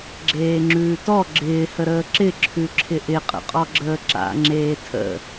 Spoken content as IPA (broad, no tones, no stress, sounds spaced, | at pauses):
ɡ͡ǁ eː ŋ͡ǁ ʉː t ɔ ɡ͡ǁ ɪː h ə ɾ əː ǁ ɪ ǁʰ ʉ ǁʰ ɪ ʔ ɪ qʼ ə̰ qʼ ɔ ɡ͡ǁ əː ǁ a̰ ŋ͡ǁ eː tʰ ə̰